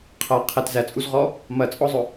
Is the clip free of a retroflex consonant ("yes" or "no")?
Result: yes